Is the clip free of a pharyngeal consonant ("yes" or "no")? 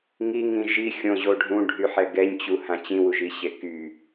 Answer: no